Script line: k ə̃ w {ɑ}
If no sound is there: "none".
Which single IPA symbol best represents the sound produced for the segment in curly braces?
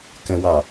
ɑ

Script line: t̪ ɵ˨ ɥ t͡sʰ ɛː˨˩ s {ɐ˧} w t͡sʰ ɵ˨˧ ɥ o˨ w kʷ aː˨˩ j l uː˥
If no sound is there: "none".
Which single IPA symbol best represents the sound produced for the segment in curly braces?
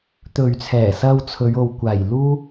ɐ˧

